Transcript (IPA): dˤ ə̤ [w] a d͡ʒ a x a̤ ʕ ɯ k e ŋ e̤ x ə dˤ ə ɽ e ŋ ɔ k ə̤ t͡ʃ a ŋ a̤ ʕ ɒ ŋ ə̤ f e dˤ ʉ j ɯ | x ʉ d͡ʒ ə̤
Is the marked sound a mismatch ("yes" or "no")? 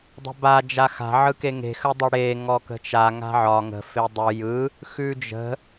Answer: yes